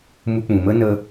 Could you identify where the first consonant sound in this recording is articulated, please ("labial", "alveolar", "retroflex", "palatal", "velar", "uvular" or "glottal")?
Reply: labial